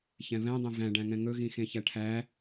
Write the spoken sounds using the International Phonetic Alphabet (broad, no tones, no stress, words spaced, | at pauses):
çɛ̃βɛ̃dˤẽ væ̃ɖæ̃ŋɛ̃ ŋɵɣĩ xẽçæʈʰæ